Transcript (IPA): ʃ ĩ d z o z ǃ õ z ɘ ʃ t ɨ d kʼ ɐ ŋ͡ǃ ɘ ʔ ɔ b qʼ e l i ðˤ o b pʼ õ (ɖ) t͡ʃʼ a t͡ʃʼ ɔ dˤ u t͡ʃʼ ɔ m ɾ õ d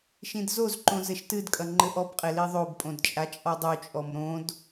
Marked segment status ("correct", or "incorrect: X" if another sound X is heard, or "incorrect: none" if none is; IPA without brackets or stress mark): incorrect: d